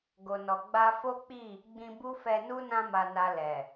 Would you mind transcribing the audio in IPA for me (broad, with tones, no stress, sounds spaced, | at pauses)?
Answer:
ɡ o˨ n ɔ˨ ɡ͡b a˧ f o˦ k͡p i˦˨ | ɡ͡b ĩ˧ b u˦ f ɛ˧ n u˦ n ã˦ m a˧ n a˧ l ɛ˨